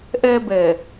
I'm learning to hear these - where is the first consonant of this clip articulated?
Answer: throat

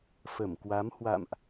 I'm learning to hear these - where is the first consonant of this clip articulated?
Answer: lips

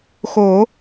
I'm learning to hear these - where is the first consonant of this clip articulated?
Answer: velum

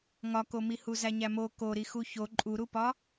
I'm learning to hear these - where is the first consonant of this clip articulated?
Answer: velum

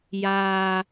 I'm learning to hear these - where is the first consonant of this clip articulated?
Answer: palate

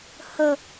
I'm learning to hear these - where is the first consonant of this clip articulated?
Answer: throat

